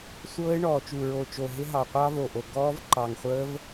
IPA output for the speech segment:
sʷ ɤː˦˥ ɪ̯ ɳ ɔː˨˩ t͡ʃ u˨˩ ɹ o˨˩ t͡ʃ o˨˩ ɦ ɪ˦˥ ɦ ɑ˨˩ qʷ ɑ˦˥ v o˨˩ ʔ o˨˩ ɡ ɔː˦˥ v ǃ ɑ˨˩ ŋ χʷ əː˦˥ v

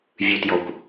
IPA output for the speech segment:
vʲ ʉ t j ɔ kʷ

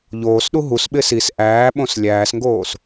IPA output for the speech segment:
ʎ oː s ɗ u ɦ u s ɓ ɪː s i s ʔ æː ɓ õ s lʲ æː s ŋ ɡ oː s

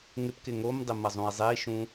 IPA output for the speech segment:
ŋ ɪ p k ɪ ŋ o m dˤ ɪ m ɐ zˤ ũ i̯ zˤ e i̯ ʃ ũ

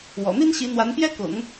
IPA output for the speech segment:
w ɔ̰˨˩ n̪ i˥ n ɕ i˧˥ n̪ w a˧˥ n p j ɛ˥ k ʊ̰˨˩˦ ŋ

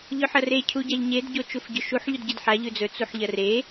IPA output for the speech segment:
ʎ ɵ ħ ɐ r e cʰ u ɟ a ʎ ɲ e d ɟ o t͡ʃ u f ɟ ɵ ʃ u ħ ʎ u d ɟ ɨ d ħ a ʎ ʉ d͡z ɵ t͡s u ħ ʎ ɐ r e

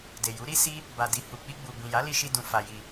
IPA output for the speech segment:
d e˨ j u˨˦ ɾ i˦ s i˦ | b a˨ d i˨ h u˨ k͡p i˧ ɡ͡b u˨ b ĩ˨ j a˨˦ l i˧ ʃ i˧ d ũ˧ f a˧ j i˧

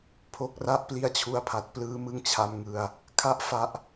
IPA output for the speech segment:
pʰ o˦˥ k̚ r a˥˩ ʔ p l i˧ a̯ t͡ɕʰ u˧ a̯ pʰ a˨˩ t̚ p l ɯː˦˥ m ɯ˥˩ ŋ t͡ɕʰ a˧ m ŋ ɯ˧ a̯ | kʰ a˦˥ ʔ f a˦˥ ʔ

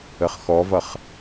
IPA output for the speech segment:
ə χ x ɔ v ʌ χ

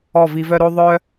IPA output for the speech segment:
ɔ˦˨ v i˧ v œ˦ ɾ o˦ ðˤ œ˦

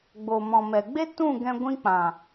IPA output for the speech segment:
ɡ͡b o˨ m ɔ̃˨ m ɛ˨ ɡ͡b e˦ t ũ˦˨ ɡ ɛ̃˧ ɡʷ ĩ˧ k͡p ã˨

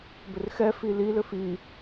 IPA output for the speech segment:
b ʏ r x ɛ f i l i l ʏ f i

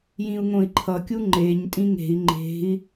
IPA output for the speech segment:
j ĩ u̯ ŋ õ i̯ ǃʰ ʌ kʲ u ŋ͡ǃ e ɲ tʼ ĩ ŋ e̤ i̯ ŋ͡ǃ e̤ i̯

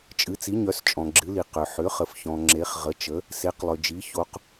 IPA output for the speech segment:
t͡ʃʼ ɨ˩˧ t͡s i˩˧ ɲ œ˩˧ s t͡ʃʼ ɔ̃˩ ɡ͡ǁ ɨ˩˧ l i˩ q ʏ˩ ħ ʏ˩˧ χ ə˩ f ç ɔ̃˩ ŋ͡ǁ e˩˧ χ ʁ ə˩˧ t͡ʃ ə˩˧ | s e˩˧ q lˠ ʏ˩ d͡ʒ i˩˧ ç o˩˧ q

